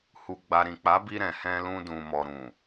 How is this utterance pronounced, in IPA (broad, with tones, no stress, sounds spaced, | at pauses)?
h u˨ ɡ͡b a˨ ɾ ĩ˨ k͡p a˨˦ b i˧ ɾ ɛ̃˨ h ɛ̃˧ l ũ˧ d ũ˨ m ɔ˨ ɾ ũ˨